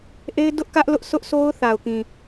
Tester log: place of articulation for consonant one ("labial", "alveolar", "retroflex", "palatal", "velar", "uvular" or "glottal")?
glottal